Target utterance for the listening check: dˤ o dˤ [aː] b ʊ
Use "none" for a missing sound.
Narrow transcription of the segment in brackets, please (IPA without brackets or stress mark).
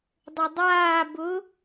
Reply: aː